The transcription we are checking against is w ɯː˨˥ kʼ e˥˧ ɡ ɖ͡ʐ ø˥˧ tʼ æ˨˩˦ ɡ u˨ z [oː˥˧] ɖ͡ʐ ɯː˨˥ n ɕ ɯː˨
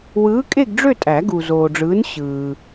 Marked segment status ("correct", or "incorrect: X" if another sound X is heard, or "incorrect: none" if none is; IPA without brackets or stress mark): incorrect: oː˨